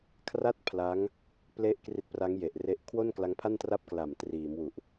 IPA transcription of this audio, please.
kʰra˥˩t̚ pʰla˦˥ŋ | ple˦˥ʔ kri˦˥t̚pra˦˥ŋje˨˩ʔre˦˥ʔ kʰwo˥˩nkla˦˥ŋ pʰa˥˩ntra˥˩p̚kla˨˩m triː˩˦mwu˨˩ʔ

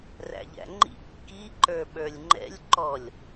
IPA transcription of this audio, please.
ræ̰ʎæ̰ŋ͡ǃḭ kːi ǃə˞ɓə˞lʲŋ͡ǃɛ̰lʲ ǃɔlʲ

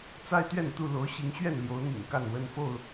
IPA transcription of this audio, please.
t͡sa˦ɪ̯t̪ɥɛ˥˨nt̪u˥˨lo˨˦ʊ̯ ɕi˨˦ŋɕɥɛ˥˨nljo˨˦ʊ̯n̪ḭ˨˩ŋ ka˥˨nwə˦nfo˥˨ʊ̯

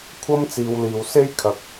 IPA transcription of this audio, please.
kʷʰɐ˥mt͡siː˨w liː˨˩wse˥jkʰɐ˨˥k̚

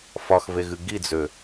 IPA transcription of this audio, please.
fɒxveɣɨ ɡid͡zø

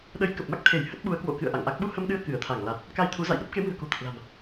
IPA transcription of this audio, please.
ɗə˨˦j kə˨˩p̚ma˦˥k̚t̪ʰe˧˩j hə˦˥t̚ɓu˨˦ə̯kwo̰˧˨kɨ̰˧˨ə̯ ʔa̰˧˨ŋʔa˦˥k̚ ɓu˧hə˧mɗɨ˧ə̯ kɨ˧˩ə̯t̪ʰa˧˩ŋla˨˩t̚ | ka˧jt̪ʰu˨˦za̰˧˨jɗə˦˥p̚ ke˨˦mɨ̤˨˩ə̯ko̤˨˩t̪ə˨˩t̚ la̤˨˩m

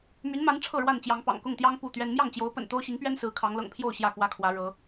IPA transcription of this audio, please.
my˨˦nma˨˦n ʈ͡ʂʰɤ˥˨ɻwa˥˨nt͡ɕjɑ˨˦ŋ pɑ̰˨˩ŋkʊ˥˨ŋt̪jɑ˦ŋ pu˥˨t̪ɥɛ˦n mjɑ˥˨ŋt͡ɕjo˨˦ʊ̯pə̰˨˩n t̪o˦ʊ̯ɕi˨˦ŋpɥɛ˦n sɹ̩˨˦kʰɑ˨˦ŋlɤ̰˨˩ŋpʰjo˥˨ʊ̯ ɕjä˥˨kwä˦kʰwä˨˦ ɻɤ˨˦

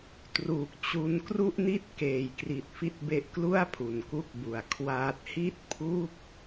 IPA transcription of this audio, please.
truː˨˩k̚t͡ɕu˧nkru˥˩ʔni˥˩t̚ keː˩˦jkri˨˩t̚ fi˦˥t̚be˦˥ʔklu˥˩a̯ pʰu˨˩nku˦˥k̚bu˨˩a̯ kʰwaː˦˥t̚ hi˥˩t̚ pʰu˥˩k̚

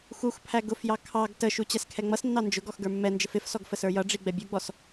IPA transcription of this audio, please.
xuxpʰæ ɡʊfjɑ kʰɑɡ təʃu t͡ɕɛskʰɛŋ͡mʌsnːɑ nd͡ʒʊɡ ɔxɡə˞mːɛnd͡ʒəf ɪfsɔɡ fəsə˞jʌɖ͡ʐi ɡ͡bɛbʲuɡ͡bɔs

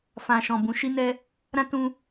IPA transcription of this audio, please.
fã˨ʃɔ̃˨ bũ˨˦ʃi˦nɛ˦ | ɾã˦tũ˧

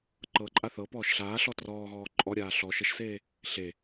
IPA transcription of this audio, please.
ǃɤǃʼa θɤpɔːʃ ɬaːɬɔ trɔːɣɔː ǃʼɔɾʲaː ɬɔ ʃəʃseː | ɬe

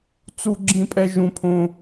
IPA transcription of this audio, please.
t͡su˦ɡ͡ǁĩ˦pʼɛ˦ ʒũ˦pʰõ˦

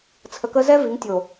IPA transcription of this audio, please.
t͡sʰə˨kə˦ zɛ˦ vi˨˦ŋtʲo˨

